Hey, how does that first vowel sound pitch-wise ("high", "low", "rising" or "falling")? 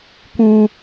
low